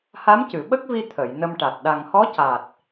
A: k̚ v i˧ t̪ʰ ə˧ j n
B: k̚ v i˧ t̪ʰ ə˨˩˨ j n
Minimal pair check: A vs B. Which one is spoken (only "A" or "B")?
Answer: B